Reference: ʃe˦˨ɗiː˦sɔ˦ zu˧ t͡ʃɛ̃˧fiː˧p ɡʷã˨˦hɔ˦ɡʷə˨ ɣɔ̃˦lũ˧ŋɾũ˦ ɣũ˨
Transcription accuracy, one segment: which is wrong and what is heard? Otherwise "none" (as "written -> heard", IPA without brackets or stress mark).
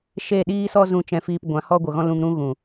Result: u˧ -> ũ˧